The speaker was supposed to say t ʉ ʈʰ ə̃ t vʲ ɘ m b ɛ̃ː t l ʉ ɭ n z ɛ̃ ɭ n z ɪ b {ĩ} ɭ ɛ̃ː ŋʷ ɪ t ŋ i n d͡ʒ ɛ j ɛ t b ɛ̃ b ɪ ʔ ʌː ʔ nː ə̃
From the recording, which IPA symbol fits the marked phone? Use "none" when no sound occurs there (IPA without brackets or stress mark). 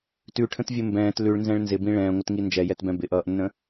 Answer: ĩ